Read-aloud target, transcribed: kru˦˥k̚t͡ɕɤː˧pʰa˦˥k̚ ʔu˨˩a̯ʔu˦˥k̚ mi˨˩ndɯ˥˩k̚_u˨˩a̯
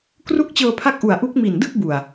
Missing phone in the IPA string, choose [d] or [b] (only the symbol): b